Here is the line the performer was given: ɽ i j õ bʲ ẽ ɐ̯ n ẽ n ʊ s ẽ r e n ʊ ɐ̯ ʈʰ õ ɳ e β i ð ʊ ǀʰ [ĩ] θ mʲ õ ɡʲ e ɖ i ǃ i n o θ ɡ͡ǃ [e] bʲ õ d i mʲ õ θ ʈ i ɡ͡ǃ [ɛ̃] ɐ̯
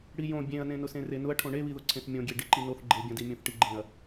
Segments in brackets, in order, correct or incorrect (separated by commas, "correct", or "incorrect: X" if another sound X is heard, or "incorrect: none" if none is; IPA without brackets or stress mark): incorrect: ẽ, correct, incorrect: ẽ